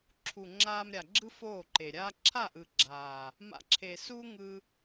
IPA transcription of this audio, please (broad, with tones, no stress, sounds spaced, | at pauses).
ǁʰ u˨ ŋ͡ǁ aː˧ m ɾʲ a˨ ɡ͡ǁ ɯ˦ f oː˦˨ ǃ e˨ ɾʲ aː˦ ǁʰ a˦˨ ʔ ɯ˨ ɡ͡ǁ aː˨ | m a̰˧ ǁʰ e˨ s uː˦ ŋ ɯ˧